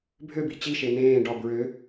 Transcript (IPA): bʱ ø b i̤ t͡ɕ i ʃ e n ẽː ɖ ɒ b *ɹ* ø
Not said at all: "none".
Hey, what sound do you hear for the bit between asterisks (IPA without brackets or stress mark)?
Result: ɹ